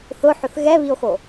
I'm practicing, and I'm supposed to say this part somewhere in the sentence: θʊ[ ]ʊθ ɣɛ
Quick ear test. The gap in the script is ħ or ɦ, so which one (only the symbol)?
ħ